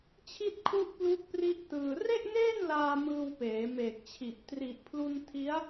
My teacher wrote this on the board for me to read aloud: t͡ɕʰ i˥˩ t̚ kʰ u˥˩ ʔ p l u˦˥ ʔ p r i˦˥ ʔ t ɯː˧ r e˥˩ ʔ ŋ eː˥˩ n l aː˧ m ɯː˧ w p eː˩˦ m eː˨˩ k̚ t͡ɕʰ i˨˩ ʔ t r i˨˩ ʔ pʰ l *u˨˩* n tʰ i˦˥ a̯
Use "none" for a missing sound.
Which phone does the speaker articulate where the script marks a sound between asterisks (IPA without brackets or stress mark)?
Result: u˧